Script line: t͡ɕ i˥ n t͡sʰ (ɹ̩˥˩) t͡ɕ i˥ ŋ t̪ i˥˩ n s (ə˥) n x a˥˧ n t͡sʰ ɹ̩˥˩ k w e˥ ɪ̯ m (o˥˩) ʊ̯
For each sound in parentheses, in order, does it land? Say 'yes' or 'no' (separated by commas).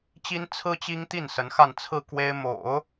no, no, no